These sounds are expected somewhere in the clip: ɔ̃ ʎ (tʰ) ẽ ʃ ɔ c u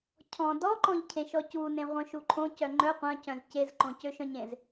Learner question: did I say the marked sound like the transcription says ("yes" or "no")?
no